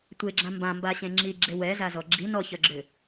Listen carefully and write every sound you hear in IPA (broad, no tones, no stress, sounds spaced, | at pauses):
tʷ e ɡ͡ǁ ã m b ã m b a ɕ ẽ ŋ͡ǁ i ɡ͡ǁ e w ɛ z a z ɔ ɡ͡ǁ i n ɔ ç ʌ ɡ͡ǁ ʏ